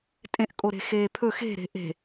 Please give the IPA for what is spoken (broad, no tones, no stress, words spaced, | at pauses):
tʼẽʔkʼoɾe̤ xeːpʰɵ xe̤ ɾe̤ʔe̤